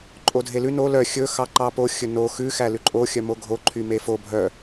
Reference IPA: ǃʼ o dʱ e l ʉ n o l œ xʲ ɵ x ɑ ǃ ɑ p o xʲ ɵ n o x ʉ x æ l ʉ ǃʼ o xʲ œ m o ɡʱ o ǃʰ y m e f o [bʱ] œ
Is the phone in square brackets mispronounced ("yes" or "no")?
no